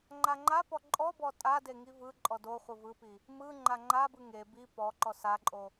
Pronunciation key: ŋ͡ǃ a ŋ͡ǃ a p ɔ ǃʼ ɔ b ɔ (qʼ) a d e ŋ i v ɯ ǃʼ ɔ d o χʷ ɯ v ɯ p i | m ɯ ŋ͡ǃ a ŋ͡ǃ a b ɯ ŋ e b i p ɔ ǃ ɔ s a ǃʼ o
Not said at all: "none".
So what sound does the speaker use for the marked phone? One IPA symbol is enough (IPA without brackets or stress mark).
tʼ